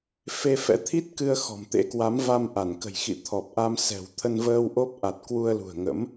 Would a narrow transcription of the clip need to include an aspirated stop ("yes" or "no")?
yes